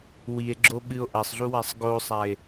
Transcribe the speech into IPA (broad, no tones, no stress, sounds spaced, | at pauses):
w i e̯ ɡ͡ǁ o ɓ ɨ o̯ ʔ ɐ sˤ ɮ u w a sˤ ɡ o sˤ a e̯